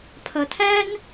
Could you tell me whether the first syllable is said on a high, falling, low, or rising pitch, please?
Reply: low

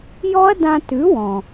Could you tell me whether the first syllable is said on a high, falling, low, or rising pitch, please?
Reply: high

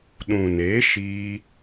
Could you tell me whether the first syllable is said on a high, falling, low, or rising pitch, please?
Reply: low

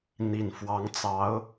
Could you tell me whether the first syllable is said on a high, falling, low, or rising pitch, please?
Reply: low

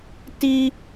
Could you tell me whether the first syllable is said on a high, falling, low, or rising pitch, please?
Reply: high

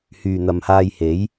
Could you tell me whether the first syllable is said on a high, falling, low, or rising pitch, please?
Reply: low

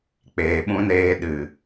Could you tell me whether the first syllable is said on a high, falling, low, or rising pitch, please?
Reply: low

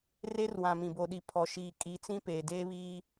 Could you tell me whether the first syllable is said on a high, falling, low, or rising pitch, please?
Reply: high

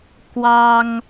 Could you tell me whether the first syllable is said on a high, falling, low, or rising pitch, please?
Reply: high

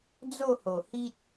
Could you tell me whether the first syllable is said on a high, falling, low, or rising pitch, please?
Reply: falling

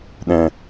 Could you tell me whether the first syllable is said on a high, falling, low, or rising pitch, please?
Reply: low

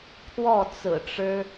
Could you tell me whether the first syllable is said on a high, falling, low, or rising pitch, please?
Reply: falling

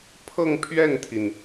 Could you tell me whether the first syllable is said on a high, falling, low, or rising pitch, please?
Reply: falling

